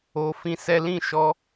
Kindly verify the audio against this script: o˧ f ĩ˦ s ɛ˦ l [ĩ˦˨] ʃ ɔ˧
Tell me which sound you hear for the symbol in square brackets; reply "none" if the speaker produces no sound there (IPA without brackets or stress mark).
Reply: ĩ˦˨